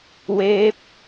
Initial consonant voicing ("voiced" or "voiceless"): voiced